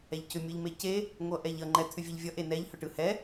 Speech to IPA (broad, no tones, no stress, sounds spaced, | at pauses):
ɛ ʎ c ʏ mʲ ɯ ʎ m e c e | ŋʷ ʌ ʔ ɛ ʎ ʌ ŋ͡ǃ ɛ t̪ʰ ʏ vʲ e ʎ vʲ ʌ ʔ e n ɛ ʎ h ʏ ʈ ɯ h ɛ